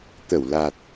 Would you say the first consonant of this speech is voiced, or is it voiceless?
voiceless